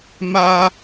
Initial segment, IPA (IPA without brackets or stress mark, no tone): m